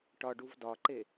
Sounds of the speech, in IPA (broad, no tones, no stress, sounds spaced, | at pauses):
ʈ ɒ ɖ u v d ɒ ǃ e